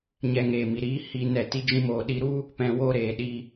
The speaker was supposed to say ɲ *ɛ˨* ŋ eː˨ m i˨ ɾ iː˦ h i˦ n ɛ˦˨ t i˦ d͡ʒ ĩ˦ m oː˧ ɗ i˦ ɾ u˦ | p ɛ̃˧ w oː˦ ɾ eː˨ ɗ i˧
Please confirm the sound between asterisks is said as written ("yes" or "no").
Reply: no